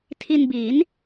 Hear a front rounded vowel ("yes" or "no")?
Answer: no